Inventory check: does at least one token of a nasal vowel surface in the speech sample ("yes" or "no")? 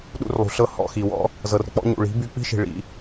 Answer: no